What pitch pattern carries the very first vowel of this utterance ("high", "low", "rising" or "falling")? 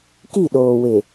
falling